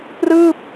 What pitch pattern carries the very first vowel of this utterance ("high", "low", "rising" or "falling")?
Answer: falling